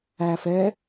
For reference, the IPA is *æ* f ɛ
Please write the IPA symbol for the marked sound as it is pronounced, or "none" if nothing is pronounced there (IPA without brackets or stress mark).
æ